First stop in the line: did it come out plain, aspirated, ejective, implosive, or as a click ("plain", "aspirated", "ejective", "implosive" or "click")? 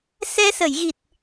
plain